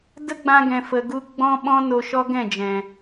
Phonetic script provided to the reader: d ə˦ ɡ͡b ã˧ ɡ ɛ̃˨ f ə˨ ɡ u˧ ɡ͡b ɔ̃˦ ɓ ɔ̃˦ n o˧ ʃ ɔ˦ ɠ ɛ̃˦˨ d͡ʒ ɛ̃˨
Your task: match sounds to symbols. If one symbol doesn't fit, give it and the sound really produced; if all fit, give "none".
ɠ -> ɡ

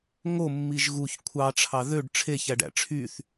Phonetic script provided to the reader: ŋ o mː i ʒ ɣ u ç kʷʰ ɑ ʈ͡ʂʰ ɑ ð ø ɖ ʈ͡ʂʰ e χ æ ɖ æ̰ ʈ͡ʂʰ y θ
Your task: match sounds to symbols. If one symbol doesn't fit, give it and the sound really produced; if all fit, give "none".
χ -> ç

